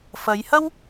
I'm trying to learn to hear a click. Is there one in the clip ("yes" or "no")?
no